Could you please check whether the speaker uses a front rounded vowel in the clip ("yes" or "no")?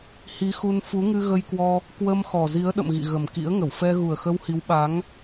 no